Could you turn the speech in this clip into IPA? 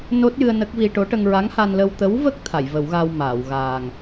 no˦˥t̚jɨ˧ə̯ nə˦˥k̚vi˧ ʈo˧˥ʈə˧ŋ ɹa˧˥ŋ ha˧nlə˧w t̪ə˧˥wvə˦˥k̚ t̪ʰa˨˩˨j və˨˩˦wɣa˧w maː˨˩˨w ɣaː˨˩ŋ

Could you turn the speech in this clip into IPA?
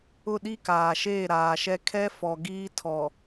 ʊ˦˨ ɗi˦kaː˨ʃeː˦˨ ɾaː˨ʃɛ˦ kʰɛ˦fɔ˨ ɡiː˦tʰɔ˨

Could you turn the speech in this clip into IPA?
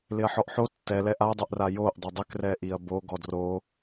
lɪɐ̯ħɔʔħo tːɛ lɛʔadˤɛʔra joʔ dˤʊdˤɪkrɛ ʔiɐ̯bo ɡɔdro

